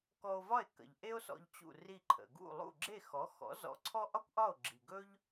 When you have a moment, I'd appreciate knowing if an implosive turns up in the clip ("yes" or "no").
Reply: no